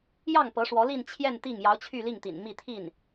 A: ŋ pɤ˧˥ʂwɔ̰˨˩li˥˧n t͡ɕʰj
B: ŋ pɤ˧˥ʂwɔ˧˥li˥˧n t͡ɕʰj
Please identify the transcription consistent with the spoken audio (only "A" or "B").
B